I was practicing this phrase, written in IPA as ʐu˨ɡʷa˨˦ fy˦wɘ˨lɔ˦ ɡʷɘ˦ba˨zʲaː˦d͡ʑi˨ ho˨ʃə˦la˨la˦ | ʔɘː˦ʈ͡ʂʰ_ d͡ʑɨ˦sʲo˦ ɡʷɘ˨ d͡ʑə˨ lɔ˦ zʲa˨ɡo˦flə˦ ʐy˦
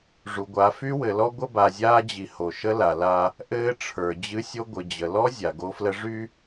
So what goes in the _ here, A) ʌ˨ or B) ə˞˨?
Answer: B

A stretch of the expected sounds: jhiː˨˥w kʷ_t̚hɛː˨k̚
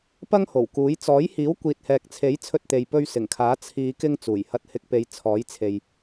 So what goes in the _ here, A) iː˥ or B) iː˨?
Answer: B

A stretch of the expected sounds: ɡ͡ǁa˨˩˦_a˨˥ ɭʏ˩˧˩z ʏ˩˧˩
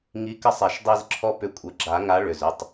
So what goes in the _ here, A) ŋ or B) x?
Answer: A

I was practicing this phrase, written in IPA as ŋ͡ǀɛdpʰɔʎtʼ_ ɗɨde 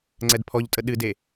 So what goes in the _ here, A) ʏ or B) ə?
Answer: B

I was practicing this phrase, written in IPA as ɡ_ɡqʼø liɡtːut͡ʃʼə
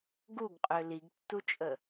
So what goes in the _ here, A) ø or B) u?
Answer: B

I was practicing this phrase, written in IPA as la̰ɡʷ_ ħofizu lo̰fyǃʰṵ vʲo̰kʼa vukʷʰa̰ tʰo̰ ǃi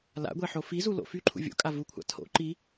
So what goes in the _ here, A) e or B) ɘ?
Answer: A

